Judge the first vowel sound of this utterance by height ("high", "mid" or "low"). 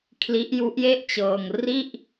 high